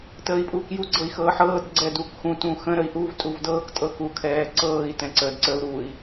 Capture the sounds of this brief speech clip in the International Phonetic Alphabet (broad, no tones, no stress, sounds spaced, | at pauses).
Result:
t əː i̯ pʼ uː k j u ɡ͡ǀ ɤ i̯ x ɤː ħ ɤː d ɡ͡ǀ ɛ d u k x ũ t ũ x ə̃ ɾ ə i̯ ʔ u v tʼ u v d ɤː k tʼ ɤ k u kʰ ɛː ǀ ɤː i̯ t ɛ̃ ǀ ə d ǀ ə u̯ ɾ u i̯